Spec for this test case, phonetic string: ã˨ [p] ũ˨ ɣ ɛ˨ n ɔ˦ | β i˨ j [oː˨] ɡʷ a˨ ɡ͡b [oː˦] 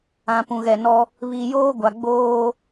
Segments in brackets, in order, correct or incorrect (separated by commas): correct, incorrect, correct